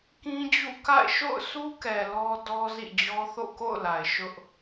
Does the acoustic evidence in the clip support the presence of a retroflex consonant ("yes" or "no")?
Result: no